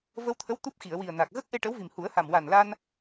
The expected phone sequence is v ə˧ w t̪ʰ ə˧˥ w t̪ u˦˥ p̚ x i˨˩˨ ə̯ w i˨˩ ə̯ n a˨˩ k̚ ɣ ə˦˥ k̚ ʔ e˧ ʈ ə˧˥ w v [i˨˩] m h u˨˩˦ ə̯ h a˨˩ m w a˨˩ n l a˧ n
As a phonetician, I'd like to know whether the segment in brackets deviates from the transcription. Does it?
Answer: no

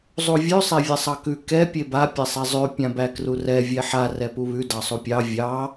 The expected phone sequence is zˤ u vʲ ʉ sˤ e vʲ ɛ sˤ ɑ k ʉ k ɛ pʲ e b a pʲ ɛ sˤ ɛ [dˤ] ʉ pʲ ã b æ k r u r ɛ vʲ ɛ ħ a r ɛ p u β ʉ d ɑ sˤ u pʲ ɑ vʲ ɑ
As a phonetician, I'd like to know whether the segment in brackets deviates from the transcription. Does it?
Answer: yes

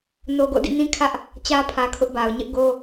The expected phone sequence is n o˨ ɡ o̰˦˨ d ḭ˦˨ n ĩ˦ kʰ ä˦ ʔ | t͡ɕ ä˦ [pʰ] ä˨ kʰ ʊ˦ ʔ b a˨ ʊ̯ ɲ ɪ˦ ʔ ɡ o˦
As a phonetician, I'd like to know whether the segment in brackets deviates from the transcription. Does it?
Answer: no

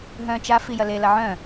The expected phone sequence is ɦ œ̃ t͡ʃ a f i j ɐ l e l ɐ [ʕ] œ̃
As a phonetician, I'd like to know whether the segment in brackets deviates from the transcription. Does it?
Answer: no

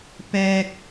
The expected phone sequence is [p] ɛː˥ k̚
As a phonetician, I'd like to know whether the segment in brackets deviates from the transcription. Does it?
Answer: no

